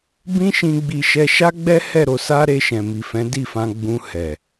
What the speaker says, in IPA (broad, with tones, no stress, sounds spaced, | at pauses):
b ĩ˦ ʃ ĩ˧ ɡ͡b i˧ ʃ ɛ˧ ʃ a˦ ɡ͡b ɛ˦ h ɛ˦˨ ɾ o˧ s a˦ ɾ e˧ ʃ ɛ̃˨ m i˨ f ɛ̃˨˦ d i˦˨ f ã˧ ɡ͡b ũ˧ h ɛ˨